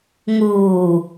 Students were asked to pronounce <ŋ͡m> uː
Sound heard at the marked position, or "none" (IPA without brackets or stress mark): ŋ